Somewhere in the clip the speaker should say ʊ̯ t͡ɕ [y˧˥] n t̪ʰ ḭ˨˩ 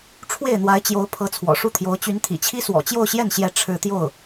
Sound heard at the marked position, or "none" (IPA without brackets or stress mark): y˧˥